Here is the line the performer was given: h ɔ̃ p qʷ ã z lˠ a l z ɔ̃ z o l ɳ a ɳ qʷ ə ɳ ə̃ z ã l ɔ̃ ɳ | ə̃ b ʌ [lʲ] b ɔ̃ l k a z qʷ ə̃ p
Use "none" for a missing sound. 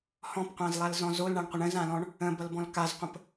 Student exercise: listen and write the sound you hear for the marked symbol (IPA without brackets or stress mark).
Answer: l